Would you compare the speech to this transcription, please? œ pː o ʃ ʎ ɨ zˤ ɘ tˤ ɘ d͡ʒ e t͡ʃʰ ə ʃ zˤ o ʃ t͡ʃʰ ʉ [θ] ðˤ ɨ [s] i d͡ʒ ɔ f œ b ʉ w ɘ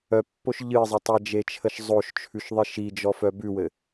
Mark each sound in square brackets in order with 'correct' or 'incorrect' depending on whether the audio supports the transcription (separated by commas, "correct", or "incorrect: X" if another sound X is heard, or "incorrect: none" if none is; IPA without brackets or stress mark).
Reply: incorrect: ʃ, incorrect: ʃ